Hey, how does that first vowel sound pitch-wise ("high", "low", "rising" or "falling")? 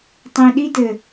low